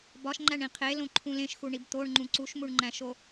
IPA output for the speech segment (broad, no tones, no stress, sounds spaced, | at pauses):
b ɒ ʃ ŋ͡ǃ æ ɳ ĩ qʰ e l õ ǃʰ ũ l ẽ ʃ x u ɳ i b t̪ o ɳ ŋ͡ǃ ũ ǀ u ʃ m u ɳ ŋ͡ǃ æ̃ ʃ o